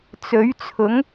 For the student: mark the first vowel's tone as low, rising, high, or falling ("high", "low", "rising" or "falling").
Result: rising